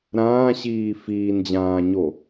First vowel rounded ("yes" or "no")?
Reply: no